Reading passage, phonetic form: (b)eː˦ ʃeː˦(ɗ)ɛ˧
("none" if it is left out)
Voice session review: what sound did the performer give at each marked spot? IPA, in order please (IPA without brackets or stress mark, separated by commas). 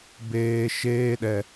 b, ɗ